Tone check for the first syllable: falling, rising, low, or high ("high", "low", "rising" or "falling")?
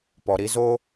low